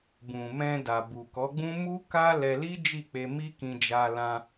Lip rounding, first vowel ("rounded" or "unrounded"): rounded